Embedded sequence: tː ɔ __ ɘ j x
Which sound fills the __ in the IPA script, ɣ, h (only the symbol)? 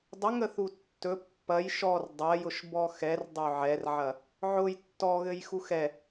ɣ